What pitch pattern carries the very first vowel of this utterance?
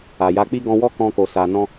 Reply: low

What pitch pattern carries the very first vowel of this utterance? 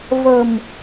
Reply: low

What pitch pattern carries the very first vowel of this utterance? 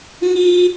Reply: high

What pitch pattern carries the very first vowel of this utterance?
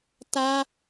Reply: high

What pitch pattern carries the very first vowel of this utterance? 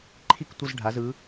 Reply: falling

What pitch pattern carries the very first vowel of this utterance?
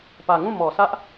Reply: low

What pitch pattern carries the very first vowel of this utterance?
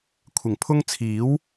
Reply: low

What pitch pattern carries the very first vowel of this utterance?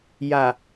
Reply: low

